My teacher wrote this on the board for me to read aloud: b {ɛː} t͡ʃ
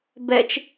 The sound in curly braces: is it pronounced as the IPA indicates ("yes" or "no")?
no